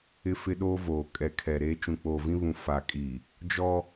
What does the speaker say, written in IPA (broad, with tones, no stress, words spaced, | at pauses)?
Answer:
ɪ˦fɪ˦ɗoː˦ voː˨ kʼɛ˨kʰɛ˨ ɾeː˦ t͡ʃũ˨k͡poː˨vĩ˦βũ˨ fa˨kʼi˨ | d͡ʒɔ˦